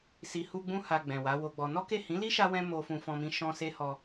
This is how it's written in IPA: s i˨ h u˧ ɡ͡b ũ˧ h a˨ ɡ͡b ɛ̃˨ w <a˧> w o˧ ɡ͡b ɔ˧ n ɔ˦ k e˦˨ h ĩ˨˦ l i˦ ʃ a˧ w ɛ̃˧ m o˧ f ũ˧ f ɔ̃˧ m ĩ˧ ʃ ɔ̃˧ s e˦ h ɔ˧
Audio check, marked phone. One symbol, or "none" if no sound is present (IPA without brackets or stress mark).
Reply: a˨˦